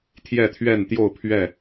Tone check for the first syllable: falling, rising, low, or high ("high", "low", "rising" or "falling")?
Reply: falling